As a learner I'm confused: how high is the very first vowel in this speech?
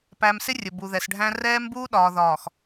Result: low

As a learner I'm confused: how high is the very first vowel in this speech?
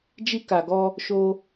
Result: high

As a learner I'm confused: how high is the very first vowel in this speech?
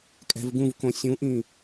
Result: mid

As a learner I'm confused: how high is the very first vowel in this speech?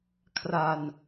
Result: low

